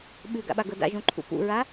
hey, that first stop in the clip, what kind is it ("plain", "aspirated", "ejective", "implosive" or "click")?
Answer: implosive